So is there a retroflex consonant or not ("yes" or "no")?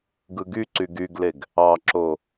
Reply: no